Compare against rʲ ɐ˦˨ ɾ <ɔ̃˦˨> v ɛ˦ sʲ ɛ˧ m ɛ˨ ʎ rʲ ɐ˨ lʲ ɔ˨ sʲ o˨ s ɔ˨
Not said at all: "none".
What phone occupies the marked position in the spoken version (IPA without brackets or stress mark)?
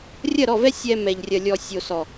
ɔ˦˨